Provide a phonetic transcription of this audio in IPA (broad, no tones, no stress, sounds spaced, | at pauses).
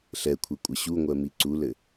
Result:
ɬ ɛ kʷʰ e kʷʼ ɘ ɕ u ŋʷ ɜ m i ǀ u l ɘ